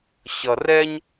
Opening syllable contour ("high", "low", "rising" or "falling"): low